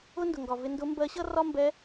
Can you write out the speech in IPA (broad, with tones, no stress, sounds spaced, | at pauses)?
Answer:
ʊ˥ n d ʊ˩ ŋ ɡ ɒ˩ v ɪ˧ n d ʊ˧˥ m b ɜ˧˥ ɕ ʌ˥ r ɒ˥ m b ɛ˧˥